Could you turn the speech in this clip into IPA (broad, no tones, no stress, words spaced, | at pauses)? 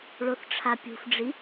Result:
ɭoθʈ͡ʂʰapʲṳfɖ͡ʐi